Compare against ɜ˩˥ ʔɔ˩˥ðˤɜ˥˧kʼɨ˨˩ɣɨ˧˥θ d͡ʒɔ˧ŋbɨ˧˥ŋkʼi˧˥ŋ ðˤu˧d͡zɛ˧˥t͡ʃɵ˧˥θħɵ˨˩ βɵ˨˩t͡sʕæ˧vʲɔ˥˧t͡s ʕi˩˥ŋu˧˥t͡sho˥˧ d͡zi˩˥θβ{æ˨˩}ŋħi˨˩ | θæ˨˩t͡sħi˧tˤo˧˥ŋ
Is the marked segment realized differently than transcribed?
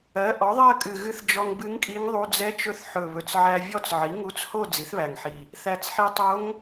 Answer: no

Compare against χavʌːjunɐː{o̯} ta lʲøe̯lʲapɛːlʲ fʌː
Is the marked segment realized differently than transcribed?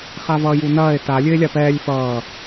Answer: yes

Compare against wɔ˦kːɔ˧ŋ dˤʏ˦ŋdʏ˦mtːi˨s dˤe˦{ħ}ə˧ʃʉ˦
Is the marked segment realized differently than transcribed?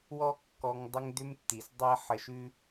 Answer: no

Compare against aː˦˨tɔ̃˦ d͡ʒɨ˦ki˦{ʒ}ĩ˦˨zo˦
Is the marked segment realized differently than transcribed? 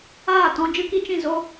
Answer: yes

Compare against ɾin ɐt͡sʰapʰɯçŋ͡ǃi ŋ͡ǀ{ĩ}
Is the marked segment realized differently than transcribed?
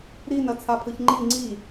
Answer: yes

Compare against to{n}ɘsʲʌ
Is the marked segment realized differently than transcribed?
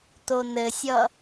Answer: no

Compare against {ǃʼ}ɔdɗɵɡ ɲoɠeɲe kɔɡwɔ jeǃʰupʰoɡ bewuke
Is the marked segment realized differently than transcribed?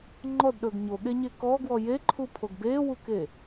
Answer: yes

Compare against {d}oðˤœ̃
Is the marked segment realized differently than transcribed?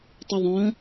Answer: yes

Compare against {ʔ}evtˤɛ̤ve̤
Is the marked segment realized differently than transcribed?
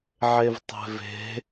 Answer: yes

